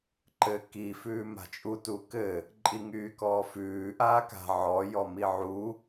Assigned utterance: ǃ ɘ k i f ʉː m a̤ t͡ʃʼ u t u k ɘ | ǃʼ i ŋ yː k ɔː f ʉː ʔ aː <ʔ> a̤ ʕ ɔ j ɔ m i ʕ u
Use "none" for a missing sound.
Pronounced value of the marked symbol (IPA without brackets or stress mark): k